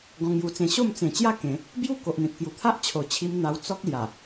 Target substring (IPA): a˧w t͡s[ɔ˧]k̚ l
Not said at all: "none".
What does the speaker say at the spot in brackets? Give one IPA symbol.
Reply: ɔ˦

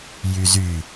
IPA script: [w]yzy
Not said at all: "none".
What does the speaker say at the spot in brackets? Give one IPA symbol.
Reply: j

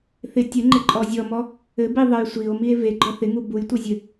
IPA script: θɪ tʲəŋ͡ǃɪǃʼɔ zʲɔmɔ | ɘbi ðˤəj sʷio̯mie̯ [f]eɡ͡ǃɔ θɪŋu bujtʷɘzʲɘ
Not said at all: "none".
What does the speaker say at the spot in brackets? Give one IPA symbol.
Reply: v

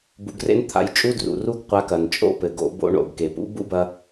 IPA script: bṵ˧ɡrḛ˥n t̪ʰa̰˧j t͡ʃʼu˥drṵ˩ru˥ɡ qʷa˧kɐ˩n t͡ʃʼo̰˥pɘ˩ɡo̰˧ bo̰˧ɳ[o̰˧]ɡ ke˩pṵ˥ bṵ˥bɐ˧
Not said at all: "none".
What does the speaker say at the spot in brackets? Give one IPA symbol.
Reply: o̰˩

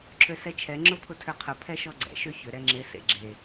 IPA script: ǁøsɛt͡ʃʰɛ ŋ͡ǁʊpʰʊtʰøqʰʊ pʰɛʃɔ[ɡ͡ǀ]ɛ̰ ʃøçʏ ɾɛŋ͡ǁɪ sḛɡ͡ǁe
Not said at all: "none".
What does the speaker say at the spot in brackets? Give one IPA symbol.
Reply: ɡ͡ǀ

